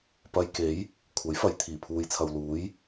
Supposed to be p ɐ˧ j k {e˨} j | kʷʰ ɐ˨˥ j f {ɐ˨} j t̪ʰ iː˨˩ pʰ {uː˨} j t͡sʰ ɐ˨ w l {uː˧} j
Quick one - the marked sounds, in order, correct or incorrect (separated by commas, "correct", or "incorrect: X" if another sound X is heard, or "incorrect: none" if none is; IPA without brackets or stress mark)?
incorrect: e˨˥, correct, correct, incorrect: uː˨˥